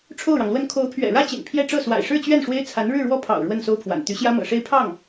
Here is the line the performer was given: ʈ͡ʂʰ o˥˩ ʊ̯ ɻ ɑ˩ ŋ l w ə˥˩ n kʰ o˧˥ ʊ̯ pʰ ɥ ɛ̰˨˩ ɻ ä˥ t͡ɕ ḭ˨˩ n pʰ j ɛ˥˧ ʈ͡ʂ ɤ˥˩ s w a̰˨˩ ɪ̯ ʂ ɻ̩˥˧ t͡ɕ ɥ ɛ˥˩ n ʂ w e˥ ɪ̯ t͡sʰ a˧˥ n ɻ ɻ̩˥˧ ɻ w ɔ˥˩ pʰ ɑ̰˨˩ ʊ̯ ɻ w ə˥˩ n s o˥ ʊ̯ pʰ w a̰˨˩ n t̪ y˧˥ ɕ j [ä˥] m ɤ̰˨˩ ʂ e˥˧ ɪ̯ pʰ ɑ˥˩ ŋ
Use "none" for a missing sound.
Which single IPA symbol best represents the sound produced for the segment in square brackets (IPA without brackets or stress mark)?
ä˥